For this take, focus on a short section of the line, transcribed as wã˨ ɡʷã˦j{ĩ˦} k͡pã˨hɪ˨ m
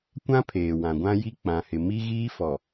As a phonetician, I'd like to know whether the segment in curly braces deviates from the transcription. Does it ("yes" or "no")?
yes